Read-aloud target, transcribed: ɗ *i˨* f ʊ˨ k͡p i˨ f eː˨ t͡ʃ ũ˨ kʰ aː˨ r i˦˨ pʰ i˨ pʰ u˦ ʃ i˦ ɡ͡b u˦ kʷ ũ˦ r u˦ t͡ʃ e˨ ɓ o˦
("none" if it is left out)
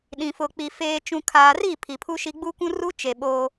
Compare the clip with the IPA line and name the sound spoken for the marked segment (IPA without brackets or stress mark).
ĩ˨